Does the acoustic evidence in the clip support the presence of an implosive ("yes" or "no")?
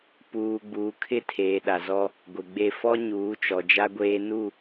yes